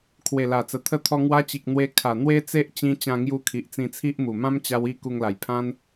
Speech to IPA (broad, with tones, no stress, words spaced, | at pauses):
kʰwe˨˩la˨˩t͡sə˨˩ t̪ʰə˧t̪ʰɔ˧ŋwa˧t͡ɕi˨k̚ n̪we˧ kʰa˨˩n̪we˦ t͡se˦ʔt͡ɕĩ˧ t͡ɕã˧ŋju˧ kʰi˨ʔt͡sĩ˧t͡sʰi˦ʔmu˨˩ mã˦mt͡ɕa˧w i˥˧ku˧ŋla˨˩jpʰã˦n